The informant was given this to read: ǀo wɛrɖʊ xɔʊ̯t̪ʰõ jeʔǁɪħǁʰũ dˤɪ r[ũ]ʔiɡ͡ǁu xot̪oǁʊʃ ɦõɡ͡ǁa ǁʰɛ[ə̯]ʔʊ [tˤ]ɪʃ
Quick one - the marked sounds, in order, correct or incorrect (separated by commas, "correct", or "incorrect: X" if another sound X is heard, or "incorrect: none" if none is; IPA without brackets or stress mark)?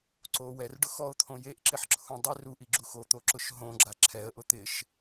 incorrect: u, correct, incorrect: t̪